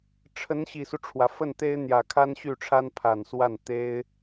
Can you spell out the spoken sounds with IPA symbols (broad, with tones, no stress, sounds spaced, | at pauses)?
ʈ͡ʂʰ ə˧˥ n ɕ i˨˩ s u˦ ʈ͡ʂʰ w ä˩ f ə˥˩ n t̪ e˥ ɪ̯ n̪ j ä˨˩ kʰ a˥ n ɕ y˥˩ ʈ͡ʂʰ a˥ n pʰ a˨˩ n s w a˥˩ n t̪ e˥ ɪ̯